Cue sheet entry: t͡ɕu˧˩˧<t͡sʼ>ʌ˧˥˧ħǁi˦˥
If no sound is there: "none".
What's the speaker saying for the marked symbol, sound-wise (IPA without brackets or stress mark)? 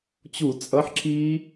t͡sʼ